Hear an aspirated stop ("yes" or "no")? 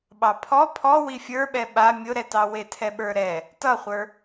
yes